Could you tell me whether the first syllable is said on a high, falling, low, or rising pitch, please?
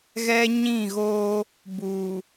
high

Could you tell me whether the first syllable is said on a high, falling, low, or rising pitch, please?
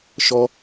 high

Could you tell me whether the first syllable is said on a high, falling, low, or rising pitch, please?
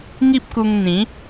high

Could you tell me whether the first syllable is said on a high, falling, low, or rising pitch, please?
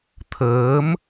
rising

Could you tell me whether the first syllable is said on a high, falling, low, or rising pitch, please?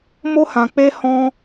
high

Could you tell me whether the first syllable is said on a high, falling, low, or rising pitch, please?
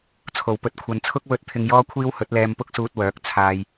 low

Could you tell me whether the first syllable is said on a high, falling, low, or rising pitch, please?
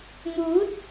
rising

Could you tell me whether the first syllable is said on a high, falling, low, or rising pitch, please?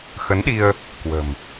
rising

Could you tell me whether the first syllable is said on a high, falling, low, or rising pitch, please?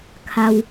low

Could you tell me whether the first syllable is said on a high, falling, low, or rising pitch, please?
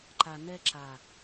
low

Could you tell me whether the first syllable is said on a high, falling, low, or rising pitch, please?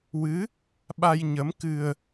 rising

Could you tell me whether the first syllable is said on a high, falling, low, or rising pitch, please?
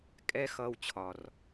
high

